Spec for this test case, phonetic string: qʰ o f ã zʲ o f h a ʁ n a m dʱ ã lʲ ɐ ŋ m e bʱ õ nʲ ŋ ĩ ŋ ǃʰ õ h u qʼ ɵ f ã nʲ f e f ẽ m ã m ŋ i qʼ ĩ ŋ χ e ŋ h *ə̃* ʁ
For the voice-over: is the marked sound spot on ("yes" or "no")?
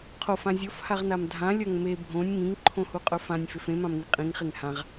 no